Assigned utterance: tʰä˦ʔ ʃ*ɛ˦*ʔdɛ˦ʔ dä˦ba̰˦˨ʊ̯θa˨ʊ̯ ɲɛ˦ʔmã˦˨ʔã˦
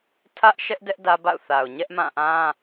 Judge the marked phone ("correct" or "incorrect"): correct